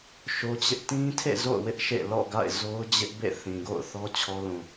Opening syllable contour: high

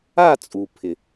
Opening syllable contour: falling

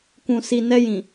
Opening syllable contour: low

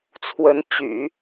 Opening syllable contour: rising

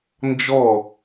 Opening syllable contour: falling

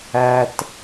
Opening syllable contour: low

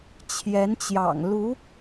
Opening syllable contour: rising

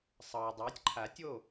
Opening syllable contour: low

